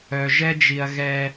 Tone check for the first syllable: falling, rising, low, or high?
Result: low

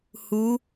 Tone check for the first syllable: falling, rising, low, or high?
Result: rising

